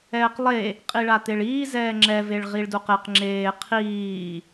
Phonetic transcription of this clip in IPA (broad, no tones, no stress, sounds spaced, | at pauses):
ɛː q lˠ e | qʼ i ɭ a t̪ e ɭ iː z ɛː ŋ͡ǁ ɛ v e ɭ ʁ i ɭ d u q e q ŋ͡ǁ eː qʰ iː